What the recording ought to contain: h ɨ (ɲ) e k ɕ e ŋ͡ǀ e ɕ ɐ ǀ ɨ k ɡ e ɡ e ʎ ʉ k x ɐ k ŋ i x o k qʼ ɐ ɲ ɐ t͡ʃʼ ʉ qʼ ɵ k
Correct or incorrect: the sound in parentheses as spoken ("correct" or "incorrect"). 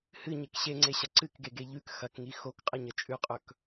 correct